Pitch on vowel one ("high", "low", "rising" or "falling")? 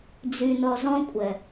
low